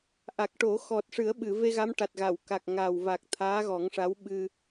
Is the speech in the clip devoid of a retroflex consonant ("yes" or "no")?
no